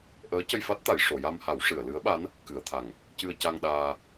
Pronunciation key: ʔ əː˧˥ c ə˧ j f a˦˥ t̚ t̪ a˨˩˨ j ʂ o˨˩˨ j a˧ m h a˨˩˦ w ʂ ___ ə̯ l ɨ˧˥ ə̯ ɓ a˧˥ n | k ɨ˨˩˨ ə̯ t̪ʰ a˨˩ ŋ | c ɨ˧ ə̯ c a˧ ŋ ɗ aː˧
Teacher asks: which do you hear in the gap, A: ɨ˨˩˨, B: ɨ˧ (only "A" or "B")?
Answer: A